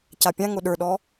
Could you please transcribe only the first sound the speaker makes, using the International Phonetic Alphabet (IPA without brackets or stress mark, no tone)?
c